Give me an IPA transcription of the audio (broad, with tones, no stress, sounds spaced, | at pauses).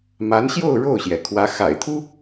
m a˧˥ n ɕ j o˥˧ ʊ̯ ɻ o˥˩ ʊ̯ ɕ j ɛ˩ kʰ w ä˧˥ x a̰˨˩ ɪ̯ t̪ʰ u˥